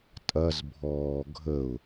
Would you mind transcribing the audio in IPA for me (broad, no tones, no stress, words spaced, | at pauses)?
tʼɐzbʱɔː ɡʱəʊ̯